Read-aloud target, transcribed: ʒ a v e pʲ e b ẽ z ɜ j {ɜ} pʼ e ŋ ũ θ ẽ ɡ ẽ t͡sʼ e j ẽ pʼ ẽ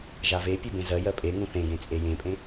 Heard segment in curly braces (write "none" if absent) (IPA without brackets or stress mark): ɜ